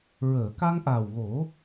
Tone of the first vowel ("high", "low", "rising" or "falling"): low